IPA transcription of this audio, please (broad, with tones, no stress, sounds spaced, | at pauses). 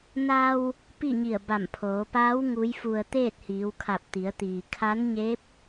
n a˧ w | p i˥˨ ɲ i˧˩ ə̯ b a˧˩ m pʰ oː˩˧ p aː˧˥ w ŋ u˧˥ j f u˧ ə̯ t̪ eː˥˨ t̚ h iː˩˧ w kʰ a˧˩ p̚ t̪ i˩˧ ə̯ t̪ iː˩ kʰ a˧˥ n ɲ e˧˥ p̚